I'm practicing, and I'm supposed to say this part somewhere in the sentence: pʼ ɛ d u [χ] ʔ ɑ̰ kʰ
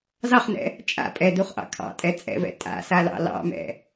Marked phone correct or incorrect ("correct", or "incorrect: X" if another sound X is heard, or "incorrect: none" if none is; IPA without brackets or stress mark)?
correct